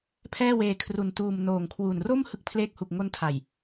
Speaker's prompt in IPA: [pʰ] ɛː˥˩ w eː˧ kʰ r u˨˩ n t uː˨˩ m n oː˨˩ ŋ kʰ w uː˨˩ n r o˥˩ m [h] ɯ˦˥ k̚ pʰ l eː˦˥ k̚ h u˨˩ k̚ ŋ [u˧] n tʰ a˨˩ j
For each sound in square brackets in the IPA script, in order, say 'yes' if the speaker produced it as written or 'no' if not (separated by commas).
yes, yes, no